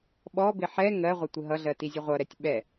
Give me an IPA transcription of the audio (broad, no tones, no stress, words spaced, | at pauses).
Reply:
ɓɔbɪ ħɛ ŋɜʁʷɪ tʷɪɦʌɮɜ tizʲəʁʷʌɾɛtʲ ɓɛ